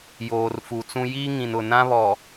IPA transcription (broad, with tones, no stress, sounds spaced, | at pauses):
j oː˨ r f u˨ t͡s ũ˦ j iː˦ ŋ ĩ˨ n ʊ˨ n ã˦ β ɔ˨